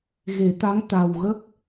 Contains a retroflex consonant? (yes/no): no